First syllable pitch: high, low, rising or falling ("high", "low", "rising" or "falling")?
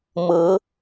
rising